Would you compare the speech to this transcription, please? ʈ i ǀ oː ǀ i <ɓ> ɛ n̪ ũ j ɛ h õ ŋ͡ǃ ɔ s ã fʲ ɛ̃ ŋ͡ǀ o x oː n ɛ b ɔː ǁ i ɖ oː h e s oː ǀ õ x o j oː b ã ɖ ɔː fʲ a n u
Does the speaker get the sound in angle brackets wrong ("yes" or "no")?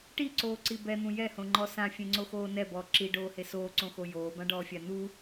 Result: yes